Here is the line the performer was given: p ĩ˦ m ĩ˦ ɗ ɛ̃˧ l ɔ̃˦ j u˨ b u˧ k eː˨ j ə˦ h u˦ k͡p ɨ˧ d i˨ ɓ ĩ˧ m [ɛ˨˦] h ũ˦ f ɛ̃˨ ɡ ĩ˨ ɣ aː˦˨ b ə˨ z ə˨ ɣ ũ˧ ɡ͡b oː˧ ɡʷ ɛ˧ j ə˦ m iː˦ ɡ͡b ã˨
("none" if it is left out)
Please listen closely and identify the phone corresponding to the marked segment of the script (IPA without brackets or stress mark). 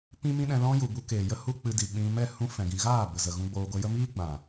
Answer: ɛ˦˨